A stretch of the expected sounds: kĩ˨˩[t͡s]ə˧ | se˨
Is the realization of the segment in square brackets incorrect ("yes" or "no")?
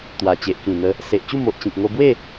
yes